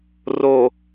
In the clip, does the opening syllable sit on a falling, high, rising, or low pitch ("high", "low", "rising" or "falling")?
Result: low